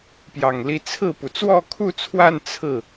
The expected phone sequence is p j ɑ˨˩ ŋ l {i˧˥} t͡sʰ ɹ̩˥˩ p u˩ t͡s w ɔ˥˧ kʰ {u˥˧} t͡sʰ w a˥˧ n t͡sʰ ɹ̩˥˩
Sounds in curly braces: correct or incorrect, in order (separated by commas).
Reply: correct, correct